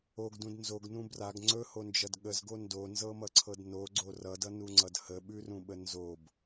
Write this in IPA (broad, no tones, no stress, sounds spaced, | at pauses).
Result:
o ɡ d ũ d n z o ɡ n ũ b r a ɡ ŋ͡ǀ ɵ h o n d͡ʒ ʌ d ɠ ə z ɡ o n d o n z ɤ m ʌ ǀʰ ɤ d n o ɡ͡ǀ o r ʌ d ʌ n u ŋ͡ǀ ʌ d h ə ɓ ʉ r ũ ɓ ə n z o b